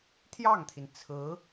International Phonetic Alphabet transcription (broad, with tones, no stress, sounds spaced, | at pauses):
t̪ʰ j ɑ˥˩ ŋ t̪ʰ i˩ n t͡sʰ ɹ̩˧˥